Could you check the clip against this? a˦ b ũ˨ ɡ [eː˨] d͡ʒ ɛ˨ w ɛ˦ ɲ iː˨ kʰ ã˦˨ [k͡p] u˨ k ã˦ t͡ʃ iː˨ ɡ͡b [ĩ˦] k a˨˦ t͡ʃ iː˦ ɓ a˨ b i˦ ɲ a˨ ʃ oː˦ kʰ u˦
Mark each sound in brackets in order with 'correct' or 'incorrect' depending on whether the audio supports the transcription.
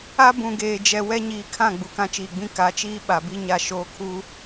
correct, incorrect, correct

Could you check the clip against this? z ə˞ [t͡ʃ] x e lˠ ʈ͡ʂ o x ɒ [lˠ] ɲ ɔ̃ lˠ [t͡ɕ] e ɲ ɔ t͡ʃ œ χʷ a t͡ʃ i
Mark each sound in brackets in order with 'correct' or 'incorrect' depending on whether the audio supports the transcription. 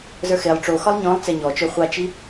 incorrect, correct, incorrect

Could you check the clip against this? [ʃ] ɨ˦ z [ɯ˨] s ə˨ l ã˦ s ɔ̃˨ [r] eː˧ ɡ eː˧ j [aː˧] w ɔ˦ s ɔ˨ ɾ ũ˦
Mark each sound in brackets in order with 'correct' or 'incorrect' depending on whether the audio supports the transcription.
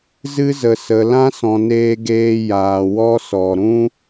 incorrect, incorrect, incorrect, incorrect

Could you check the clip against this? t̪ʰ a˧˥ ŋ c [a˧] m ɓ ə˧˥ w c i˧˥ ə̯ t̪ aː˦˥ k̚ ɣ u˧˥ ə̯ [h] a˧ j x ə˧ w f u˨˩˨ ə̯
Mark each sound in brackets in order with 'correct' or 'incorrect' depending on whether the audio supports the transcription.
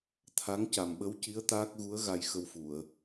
incorrect, incorrect

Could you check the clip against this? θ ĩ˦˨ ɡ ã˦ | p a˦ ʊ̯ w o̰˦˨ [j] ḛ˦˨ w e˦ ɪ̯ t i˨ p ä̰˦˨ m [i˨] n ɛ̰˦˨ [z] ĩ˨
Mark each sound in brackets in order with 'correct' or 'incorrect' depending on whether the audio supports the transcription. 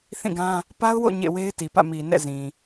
incorrect, correct, correct

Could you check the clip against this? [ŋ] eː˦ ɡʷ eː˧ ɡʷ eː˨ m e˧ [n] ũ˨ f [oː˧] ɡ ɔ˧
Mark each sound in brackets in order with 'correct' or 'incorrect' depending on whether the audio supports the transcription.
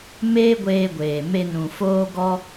incorrect, correct, correct

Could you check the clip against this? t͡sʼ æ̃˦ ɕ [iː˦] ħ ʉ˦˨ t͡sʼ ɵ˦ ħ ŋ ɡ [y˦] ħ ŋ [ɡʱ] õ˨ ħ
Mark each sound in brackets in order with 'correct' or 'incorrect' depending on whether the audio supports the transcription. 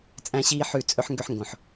correct, incorrect, incorrect

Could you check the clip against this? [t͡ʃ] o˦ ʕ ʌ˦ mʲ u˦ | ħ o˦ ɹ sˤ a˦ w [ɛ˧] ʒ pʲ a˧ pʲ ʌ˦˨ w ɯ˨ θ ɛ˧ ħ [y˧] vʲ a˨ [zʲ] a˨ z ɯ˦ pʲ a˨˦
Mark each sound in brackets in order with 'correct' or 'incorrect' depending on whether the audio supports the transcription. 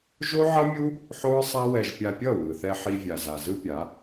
incorrect, correct, incorrect, incorrect

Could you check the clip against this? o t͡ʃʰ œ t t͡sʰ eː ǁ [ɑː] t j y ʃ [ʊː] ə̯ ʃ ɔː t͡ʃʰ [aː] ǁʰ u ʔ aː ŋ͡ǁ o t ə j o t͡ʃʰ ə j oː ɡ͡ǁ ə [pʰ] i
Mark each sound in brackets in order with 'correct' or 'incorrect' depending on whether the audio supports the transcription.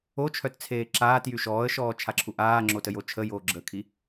incorrect, incorrect, incorrect, incorrect

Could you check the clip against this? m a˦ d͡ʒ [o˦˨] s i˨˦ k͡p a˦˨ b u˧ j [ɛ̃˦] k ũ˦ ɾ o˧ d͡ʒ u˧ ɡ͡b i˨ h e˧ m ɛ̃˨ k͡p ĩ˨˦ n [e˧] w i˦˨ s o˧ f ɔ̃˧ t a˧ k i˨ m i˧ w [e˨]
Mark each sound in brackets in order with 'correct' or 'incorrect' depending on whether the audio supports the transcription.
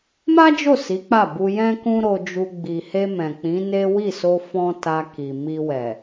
correct, correct, incorrect, incorrect

